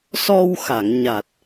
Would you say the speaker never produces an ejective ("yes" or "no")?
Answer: yes